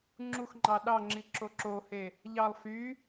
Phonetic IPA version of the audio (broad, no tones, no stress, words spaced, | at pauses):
ŋ͡ǁuxŋ͡ǃɑ ɗɑŋ͡ǁi ǁoǁohe | ʎɑlˠ fy